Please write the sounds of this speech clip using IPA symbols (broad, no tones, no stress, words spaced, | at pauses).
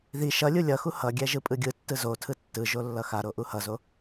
ði ʃʌlʲu lʲʌxu hʌɡʲɛ ʒɯpʼɯɡʲɯtːɯ zotʰɯ tːɯʒo lːʌxaɾo ʔuhʌzo